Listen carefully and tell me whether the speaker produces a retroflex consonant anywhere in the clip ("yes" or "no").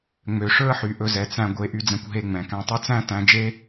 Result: yes